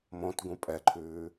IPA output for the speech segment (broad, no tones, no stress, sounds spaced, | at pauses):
m õ t ɡ ũ pʼ ɛ ǃʰ ʉː